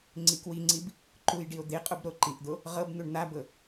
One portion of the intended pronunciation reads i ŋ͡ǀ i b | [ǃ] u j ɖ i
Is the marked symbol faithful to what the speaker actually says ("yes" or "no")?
yes